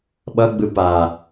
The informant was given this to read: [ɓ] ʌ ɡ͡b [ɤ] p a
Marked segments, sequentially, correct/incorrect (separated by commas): correct, incorrect